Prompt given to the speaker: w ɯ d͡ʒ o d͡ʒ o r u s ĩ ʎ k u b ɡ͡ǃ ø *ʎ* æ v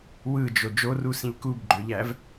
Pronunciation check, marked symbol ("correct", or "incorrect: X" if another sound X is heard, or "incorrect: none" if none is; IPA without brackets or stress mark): correct